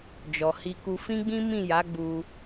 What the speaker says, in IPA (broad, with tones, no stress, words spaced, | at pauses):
d͡ʒɔ˨hi˧ku˧ fĩ˦ɡ͡bĩ˦ mĩ˦˨ja˨˦ɡ͡bu˧